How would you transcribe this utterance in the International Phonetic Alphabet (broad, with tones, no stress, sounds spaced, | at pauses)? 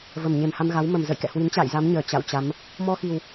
v ə˧˩ m ɲ e˧˩ m h a˧ m ɣ a˨˦ w m ə˧˩ m z ə̰˧˨ j k ɛ̰˧˨ h w i˨˦ n t͡ɕ a̰ː˧˨ j z a˨˦ m ɲ əː˧˩ t͡ɕ a̰˧˨ w t͡ɕ a˨˦ m | m ɔ˧ x i˨˩ w